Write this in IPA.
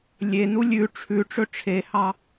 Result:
lʲenu lʲʉ ʈ͡ʂʰʉʈ͡ʂɵ ʈ͡ʂʰehɑ

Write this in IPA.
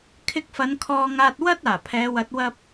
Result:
kʰɪ˧k̚fɐ˨˧n kʰɔː˧ŋaː˧t̚ wɐ˥t̚ aː˨˩pʰɛː˨˧wɐ˨˥t̚ wɐ˥p̚

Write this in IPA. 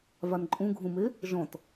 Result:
vanǃʼũɡʱũme | ʒɔ̃t

